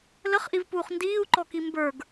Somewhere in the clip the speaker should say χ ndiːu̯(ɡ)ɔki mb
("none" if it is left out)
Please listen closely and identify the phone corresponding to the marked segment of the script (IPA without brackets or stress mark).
ǃ